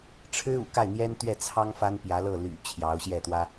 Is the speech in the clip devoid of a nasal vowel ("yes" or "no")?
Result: yes